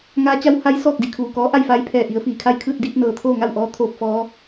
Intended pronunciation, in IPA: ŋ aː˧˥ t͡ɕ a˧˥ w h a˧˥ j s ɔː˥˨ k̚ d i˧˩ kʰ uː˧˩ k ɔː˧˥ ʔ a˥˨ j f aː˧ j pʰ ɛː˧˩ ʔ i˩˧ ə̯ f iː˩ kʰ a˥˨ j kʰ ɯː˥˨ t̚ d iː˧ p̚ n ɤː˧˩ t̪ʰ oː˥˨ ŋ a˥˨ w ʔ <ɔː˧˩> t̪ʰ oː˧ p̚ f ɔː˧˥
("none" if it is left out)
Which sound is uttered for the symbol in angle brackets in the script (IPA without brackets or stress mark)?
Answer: ɔː˧˥